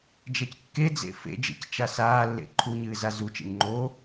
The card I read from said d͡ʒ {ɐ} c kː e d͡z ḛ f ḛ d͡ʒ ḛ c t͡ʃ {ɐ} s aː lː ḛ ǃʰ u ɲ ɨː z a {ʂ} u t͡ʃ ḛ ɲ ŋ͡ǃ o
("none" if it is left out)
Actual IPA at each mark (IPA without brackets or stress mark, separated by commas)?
ɐ, a, z